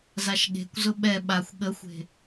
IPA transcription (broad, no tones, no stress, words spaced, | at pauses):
zaʃɠe̤kʷzʊ ɓɛ ɓaxʷ ɠəxʷe̤